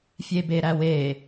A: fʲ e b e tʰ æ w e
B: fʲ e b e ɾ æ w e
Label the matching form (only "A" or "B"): B